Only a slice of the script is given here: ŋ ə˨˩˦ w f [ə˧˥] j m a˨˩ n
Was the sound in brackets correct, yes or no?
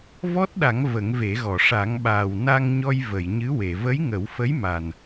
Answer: yes